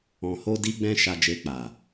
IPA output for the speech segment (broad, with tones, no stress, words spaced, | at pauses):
ɔ̃˨ho˧di˧ɡ͡bɛ̃˧ ʃa˧ d͡ʒe˧k͡pa˨